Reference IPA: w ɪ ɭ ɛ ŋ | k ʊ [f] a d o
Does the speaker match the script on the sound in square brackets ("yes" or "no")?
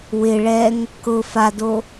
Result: yes